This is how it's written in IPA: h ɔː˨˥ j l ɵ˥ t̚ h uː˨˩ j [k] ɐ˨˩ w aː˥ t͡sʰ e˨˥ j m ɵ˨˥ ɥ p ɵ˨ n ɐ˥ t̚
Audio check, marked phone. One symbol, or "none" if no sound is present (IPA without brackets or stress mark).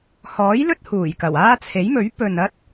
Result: k